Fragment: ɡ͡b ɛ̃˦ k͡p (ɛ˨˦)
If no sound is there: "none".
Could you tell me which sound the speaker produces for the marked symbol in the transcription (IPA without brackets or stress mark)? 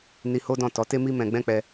ɛ˧